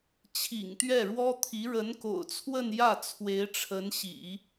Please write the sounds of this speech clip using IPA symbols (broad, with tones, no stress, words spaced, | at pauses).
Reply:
t͡ɕʰḭ˨˩ŋt̪ɥɛ˥˩ɻwɔ˥t̪ʰi˧˥ ɻə˧˥nko̰˨˩ʊ̯t͡sʰwə˥˧n jä˥˩ t͡sʰwe˧˥ɪ̯ʈ͡ʂʰə˧˥nɕḭ˨˩˦